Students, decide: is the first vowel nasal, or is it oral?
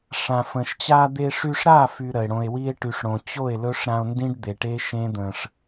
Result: nasal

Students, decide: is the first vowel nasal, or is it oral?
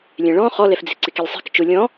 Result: nasal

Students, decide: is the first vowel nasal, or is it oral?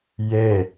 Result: oral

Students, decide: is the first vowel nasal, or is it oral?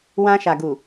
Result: nasal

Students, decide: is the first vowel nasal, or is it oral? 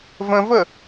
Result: nasal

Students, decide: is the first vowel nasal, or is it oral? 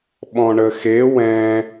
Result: nasal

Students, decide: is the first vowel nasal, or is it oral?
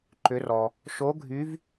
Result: oral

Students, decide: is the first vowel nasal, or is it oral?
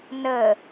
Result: oral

